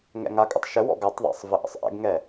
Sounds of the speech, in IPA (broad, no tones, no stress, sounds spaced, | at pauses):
ŋ ɛ̰ ŋ a kʼ ə̰ tˤ ʃ ə w ɔ̰ ɡ a tˤ ðˤ a̰ sˤ v ə ʔ ə̰ sˤ ʔ ɛ̰ ɡ ŋ ɛ